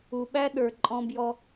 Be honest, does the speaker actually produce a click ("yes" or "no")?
yes